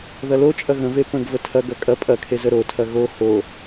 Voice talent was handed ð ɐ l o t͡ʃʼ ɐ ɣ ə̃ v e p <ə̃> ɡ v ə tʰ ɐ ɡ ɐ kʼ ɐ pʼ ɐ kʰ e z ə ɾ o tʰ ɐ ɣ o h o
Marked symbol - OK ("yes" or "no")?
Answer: yes